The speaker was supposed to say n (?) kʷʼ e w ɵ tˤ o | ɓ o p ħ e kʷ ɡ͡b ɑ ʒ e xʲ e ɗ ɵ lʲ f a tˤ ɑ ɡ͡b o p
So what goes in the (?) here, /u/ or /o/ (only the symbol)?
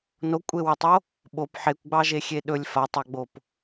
o